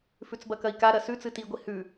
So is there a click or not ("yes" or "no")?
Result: no